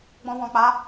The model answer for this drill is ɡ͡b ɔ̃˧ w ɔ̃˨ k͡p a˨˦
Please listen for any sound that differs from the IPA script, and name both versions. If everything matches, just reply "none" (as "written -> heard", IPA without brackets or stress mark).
none